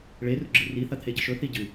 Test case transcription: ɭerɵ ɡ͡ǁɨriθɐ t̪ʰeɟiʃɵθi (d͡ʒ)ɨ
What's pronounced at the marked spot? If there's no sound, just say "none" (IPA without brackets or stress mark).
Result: ɟ